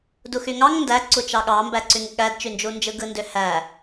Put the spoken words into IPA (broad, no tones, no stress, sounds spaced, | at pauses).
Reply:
d u x y ŋ ɑ ŋ n d æ ǀ u t͡ʃ ɑ ɠ ɑ m b æ ǀ y ŋ ɠ æ d t͡ʃ y n d͡ʒ u n d͡ʒ ɯ ɡ ɯ n d ø h æ